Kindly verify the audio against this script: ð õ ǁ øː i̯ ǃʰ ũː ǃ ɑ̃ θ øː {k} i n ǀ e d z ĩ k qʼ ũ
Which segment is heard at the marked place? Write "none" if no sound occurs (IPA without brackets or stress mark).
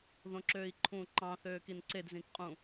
k